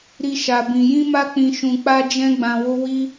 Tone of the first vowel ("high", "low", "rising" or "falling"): high